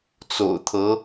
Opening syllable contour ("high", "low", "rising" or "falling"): low